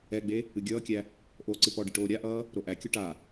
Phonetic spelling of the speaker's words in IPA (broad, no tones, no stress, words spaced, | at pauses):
ɛɡ͡be | ɨɡʲʌːkʲæ | ʔoːǀɨpɔɖɨ ʈoːɾʲaʔʌː | ɾoʔækʲo ʈa